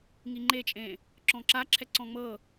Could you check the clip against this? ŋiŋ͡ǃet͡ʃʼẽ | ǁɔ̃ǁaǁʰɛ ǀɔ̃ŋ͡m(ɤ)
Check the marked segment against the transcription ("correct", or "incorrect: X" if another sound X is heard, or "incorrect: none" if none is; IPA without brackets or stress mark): correct